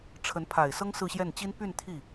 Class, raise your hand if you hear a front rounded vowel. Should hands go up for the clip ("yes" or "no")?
yes